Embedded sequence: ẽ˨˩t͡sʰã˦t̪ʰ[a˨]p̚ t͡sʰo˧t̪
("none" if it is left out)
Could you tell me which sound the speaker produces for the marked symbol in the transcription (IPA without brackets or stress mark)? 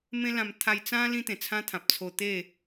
ã˨